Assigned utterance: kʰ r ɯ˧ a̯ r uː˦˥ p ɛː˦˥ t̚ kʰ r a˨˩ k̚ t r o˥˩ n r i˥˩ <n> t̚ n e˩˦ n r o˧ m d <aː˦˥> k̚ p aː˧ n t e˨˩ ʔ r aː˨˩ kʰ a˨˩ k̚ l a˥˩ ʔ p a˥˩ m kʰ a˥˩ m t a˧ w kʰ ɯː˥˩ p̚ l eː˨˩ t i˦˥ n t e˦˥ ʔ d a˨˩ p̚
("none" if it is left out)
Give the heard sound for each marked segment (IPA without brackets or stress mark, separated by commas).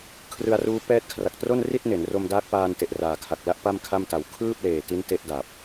none, aː˦˥